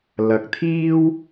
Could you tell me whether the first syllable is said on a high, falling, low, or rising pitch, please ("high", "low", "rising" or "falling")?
rising